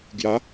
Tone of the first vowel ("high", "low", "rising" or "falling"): rising